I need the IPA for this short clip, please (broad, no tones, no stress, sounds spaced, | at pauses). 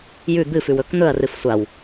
j ʉ d̪ ɨ f ʉ w ɵ k n̪ ɵ ɐ̯ r ɨ f sʷ a w